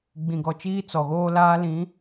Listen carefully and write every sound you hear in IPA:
ɡ͡b ĩ˨ ɡ ɔ˨ t͡ʃ iː˦ t͡s ɔ˨ ɣ oː˦ l aː˦ l ĩ˨˦

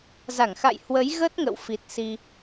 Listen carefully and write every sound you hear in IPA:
z a˧˩ ŋ x a̰˧˨ j h w ə˨˦ j ɣ ə˦˥ t̚ ŋ ə̰˧˨ w f i˨˩ t̚ s i˧

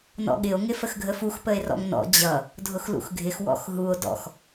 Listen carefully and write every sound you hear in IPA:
n ɔ̰ ɠ ɪ o̯ ŋ ɪ f ə x ɡʱ ə f u x p ə e̯ r ɔ̰ ŋ n ɔ̰ d͡ʑ ʌ | dʱ ʊ x l ṵ x ɡʱ ɪ x w ɔ̰ x ɦ u o̯ d ɔ̰ x

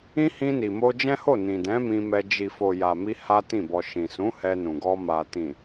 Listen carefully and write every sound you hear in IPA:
ĩ˦ h ĩ˧ n i˨ m o˧ d͡ʒ ɛ̃˦ h o˦˨ n ĩ˨ d ɛ̃˨˦ m ĩ˧ m ɛ˧ d͡ʒ i˨ f o˨ j a˨ m i˧ h a˦ t ĩ˦˨ b ɔ˧ ʃ ĩ˨ s ũ˨˦ h ɛ˧ n ũ˨ ɡ ɔ˧ m a˨ t ĩ˨

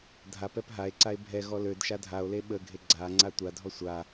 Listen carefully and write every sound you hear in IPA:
dʱ a p ɛ p ɦ a e̯ ǀ a e̯ bʱ ɛ ɣ ɔ l ø d ʃ a dʱ a o̯ l e ɓ ə ɡʱ e ɡ͡ǀ a ŋ͡ǀ a tʷ a dʱ ɔ sʷ a

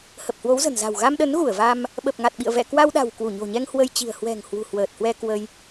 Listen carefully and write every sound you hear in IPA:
h ə˨˩ p̚ h w o˨˦ w z ə̤˨˩ n z a̤˨˩ w ɣ a˧ m ɗ ə˨˦ n ɣ u˧˩ ə̯ v a˧ m | ɓ ə˨˩ p̚ ŋ a˨˩ t̚ ɓ ḭ˧˨ ə̯ v ɛ̰˧˨ k w a˧ w ɗ a̤˨˩ w k w u˧˩ ɲ o̤˨˩ ɲ ɛ˧ ŋ h w ə˧ j t͡ɕ i̤˨˩ ə̯ h w ɛ̤˨˩ ŋ h w ṳ˨˩ h w əː˨˩ t̚ h w ɛ˧ k w ə˧ j

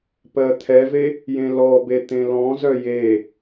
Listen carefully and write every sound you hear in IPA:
p ɜ t̪ʰ ɛ v e | j ẽ l ɔ b e t̪ ẽ l ɔ̃ z œ j e

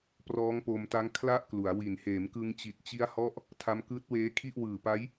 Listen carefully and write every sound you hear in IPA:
p r ɔː˦˥ ŋ p o˧ m t a˦˥ ŋ kʰ l a˥˩ ʔ k l u˩˦ a̯ w i˨˩ n h eː˩˦ m k ɯ˧ ŋ t͡ɕ i˨˩ t̚ t͡ɕ i˦˥ a̯ h ɔ˦˥ ʔ | tʰ a˦˥ m k ɯː˦˥ t̚ w eː˦˥ kʰ i˥˩ ʔ w ɯː˨˩ p a˦˥ j

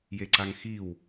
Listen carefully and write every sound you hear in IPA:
j e ǀ a ŋ x i w

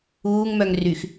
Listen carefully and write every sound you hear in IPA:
uː ŋ m œ ŋ r y x

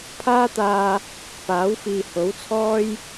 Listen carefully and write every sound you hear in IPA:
pʰ aː˥ t̪ aː˧ | p aː˨˥ w f iː˨ h o˨˥ w t͡sʰ ɔː˥ j

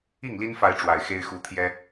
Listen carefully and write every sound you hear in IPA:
i˥˨ ŋ l i˦ n f a˨˦ ɪ̯ ʈ͡ʂ w a˨˩ ɪ̯ x e˦ ɪ̯ x u˨˦ t̪ʰ j ɛ˦

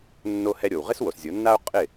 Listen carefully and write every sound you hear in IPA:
nː o˧ h ɛ˧ ɾʲ o˩ w ʁ ɪ˥ s w o˩ s zʲ o˩˥ nː a˥ o̯ qʼ ɪ˥˩

